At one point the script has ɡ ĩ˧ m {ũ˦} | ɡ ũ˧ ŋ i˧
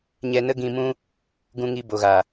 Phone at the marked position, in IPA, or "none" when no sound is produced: ũ˦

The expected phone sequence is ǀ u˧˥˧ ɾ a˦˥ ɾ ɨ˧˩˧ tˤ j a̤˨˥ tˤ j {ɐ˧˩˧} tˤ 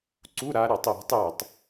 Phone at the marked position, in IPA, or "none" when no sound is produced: ɐ˧˩˧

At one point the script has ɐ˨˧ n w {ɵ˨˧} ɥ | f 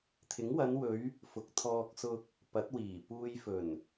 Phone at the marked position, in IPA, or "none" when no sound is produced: ɵ˨˧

